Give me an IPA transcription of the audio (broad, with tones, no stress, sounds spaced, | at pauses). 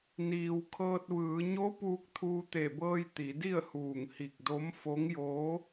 n iː˩ w kʰ ɤː˧ t̚ ʋ ɯː˩˧ ɲ o˧˥ p uː˧ k̚ t̪ʰ uː˧ t̪ e˧˩ b ɤː˧ j t̪ i˩˧ d i˥˨ ə̯ h uː˧˩ ŋ h i˧˩ k̚ d o˧˥ m f o˧˥ ŋ j oː˧˥